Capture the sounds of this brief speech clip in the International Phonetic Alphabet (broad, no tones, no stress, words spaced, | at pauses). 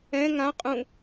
ɛ̃ ŋã qʼũ